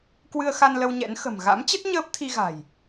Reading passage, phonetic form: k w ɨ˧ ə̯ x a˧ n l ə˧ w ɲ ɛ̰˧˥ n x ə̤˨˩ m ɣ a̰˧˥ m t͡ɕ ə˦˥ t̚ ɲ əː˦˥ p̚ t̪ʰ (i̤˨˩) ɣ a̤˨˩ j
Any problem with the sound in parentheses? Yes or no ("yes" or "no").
yes